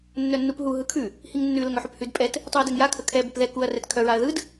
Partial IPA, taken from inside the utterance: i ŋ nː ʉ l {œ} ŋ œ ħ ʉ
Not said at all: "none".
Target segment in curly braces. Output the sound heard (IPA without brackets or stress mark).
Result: ə